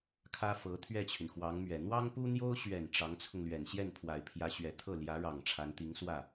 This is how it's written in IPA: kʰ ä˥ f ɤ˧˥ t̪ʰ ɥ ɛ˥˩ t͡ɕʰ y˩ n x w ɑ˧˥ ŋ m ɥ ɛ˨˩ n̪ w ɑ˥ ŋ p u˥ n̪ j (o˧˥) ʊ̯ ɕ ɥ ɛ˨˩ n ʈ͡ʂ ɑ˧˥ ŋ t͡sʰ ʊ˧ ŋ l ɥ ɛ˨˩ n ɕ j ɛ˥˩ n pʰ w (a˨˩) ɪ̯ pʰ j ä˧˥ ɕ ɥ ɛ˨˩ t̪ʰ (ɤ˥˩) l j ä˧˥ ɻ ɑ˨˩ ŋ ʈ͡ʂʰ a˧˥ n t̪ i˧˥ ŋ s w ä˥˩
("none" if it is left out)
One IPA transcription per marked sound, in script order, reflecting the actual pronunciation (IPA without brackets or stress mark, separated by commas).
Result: o˥, a˨˩, ɤ˥˩